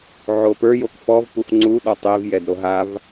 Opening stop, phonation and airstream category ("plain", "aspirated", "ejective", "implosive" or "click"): plain